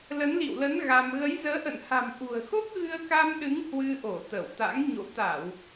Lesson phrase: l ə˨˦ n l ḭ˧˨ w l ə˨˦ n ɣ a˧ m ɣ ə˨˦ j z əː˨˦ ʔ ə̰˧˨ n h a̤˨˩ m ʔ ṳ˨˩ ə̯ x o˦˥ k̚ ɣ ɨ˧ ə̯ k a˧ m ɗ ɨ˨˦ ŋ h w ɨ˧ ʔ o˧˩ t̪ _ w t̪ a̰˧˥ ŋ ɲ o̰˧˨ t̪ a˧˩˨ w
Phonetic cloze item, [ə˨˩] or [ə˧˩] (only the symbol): ə˧˩